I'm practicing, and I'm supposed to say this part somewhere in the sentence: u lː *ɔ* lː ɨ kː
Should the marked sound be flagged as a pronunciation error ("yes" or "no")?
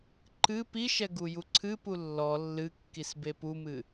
no